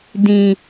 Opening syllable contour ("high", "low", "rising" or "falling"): low